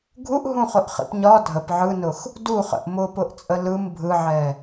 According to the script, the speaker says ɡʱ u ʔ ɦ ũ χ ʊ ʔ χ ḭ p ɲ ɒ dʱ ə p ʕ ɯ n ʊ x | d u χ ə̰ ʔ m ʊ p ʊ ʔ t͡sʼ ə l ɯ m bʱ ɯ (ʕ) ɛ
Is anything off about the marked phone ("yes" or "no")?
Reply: no